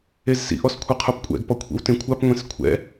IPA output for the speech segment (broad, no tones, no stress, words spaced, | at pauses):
ezsḭ ʔɔskʷʰɛqʰupkʷʼɛ̰ɡ pɔkʷʰḭwtẽkʷʰap ŋʷẽskʷʰɛ̰